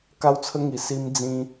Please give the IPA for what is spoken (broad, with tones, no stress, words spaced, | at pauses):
ka˧wt͡sʰə˧ŋi˨˩ si˧md͡zĩ˧